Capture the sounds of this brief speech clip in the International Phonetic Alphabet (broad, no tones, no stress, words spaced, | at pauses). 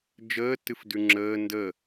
d͡ʒəːtɨfdʉ ŋ͡ǁəː ndə